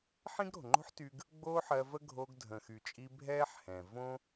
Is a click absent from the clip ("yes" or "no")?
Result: no